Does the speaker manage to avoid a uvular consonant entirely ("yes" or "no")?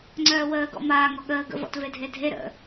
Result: yes